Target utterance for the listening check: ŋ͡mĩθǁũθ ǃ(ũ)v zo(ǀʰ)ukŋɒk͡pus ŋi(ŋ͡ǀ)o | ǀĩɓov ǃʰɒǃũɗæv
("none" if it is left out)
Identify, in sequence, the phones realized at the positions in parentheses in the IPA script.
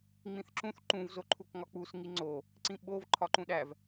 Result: ũ, ǃʰ, ŋ͡ǀ

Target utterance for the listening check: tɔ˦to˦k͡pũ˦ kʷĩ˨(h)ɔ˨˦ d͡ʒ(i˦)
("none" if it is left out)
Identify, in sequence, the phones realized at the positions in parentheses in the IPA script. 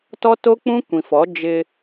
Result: f, ɪ˦

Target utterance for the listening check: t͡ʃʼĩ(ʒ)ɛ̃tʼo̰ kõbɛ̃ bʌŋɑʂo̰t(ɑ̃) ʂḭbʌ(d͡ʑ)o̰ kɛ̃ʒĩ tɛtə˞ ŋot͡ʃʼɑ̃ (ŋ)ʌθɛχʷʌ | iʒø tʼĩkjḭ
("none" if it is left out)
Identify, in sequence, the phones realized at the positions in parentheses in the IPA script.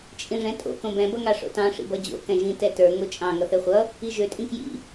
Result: ʐ, ɑ̃, d͡ʑ, ŋ

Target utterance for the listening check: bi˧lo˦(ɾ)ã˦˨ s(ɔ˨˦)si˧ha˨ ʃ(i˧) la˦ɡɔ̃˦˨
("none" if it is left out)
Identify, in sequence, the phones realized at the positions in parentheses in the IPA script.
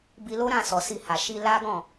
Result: ɾ, ɔ˨, i˧

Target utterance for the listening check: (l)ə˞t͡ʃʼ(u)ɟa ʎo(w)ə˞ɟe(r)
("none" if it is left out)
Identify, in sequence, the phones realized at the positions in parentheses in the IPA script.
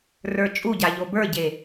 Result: r, u, b, none

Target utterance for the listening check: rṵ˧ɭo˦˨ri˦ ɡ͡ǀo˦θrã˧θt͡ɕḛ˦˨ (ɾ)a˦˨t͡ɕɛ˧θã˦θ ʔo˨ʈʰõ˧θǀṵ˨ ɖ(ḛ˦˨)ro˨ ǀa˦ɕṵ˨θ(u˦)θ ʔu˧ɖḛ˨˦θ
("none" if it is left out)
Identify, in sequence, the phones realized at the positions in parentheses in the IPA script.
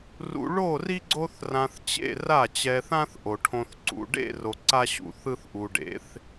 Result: r, ḛ˦˨, ɯ˦

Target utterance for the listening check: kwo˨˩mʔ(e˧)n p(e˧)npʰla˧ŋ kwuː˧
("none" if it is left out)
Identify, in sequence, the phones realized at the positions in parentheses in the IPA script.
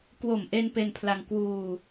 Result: e˧, e˧

